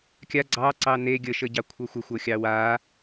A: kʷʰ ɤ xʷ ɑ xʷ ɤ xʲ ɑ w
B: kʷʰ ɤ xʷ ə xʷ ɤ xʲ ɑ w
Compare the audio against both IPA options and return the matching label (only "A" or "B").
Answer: B